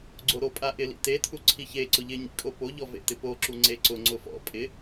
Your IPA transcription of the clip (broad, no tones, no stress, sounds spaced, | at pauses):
ɡ͡ǀ o ɾ o pʼ a ʔ ɪ l ḭ t e tʰ u ǀʰ i ç e ǀ ʊ ʎ ɪ ɲ ḭ kʼ o p o ʎ ɔ v ḛ t ɪ p o ǁ u ŋ͡ǀ e ǀ ʊ ŋ͡ǀ ʊ f ɔ̰ pʼ ɪ